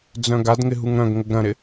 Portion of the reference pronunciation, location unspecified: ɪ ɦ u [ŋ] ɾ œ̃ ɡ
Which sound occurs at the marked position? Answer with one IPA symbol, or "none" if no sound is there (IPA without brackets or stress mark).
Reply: ŋ